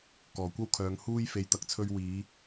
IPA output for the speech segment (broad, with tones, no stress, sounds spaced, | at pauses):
k ɔː˨˩ kʷ ɐ˥ w kʰ œː˨˧ ŋ h uː˧ j f e˨˧ j t̪ ɐ˨ k̚ t͡sʰ ɵ˧ ɥ w iː˨˧